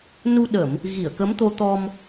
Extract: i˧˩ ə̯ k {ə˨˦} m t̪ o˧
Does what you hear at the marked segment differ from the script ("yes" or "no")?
no